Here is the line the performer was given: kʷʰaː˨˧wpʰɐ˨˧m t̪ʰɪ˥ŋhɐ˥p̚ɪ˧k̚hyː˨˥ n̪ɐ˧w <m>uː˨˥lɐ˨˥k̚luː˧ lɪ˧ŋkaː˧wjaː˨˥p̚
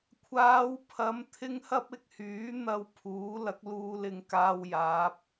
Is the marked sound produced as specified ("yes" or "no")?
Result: no